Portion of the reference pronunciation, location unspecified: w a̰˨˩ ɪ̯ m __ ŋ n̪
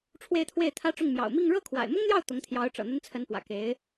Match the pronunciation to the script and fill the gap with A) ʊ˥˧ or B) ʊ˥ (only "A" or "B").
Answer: B